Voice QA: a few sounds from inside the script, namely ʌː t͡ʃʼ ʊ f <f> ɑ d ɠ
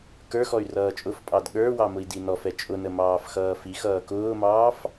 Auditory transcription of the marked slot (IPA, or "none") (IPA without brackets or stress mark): pʼ